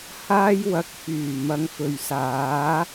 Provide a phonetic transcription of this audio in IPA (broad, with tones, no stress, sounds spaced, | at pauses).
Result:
h aː˥ j w ɐ˧ k̚ f yː˨˩ m ɐ˨˧ ŋ f ɵ˨ ɥ s aː˨˥